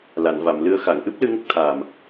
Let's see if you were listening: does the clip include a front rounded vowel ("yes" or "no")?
no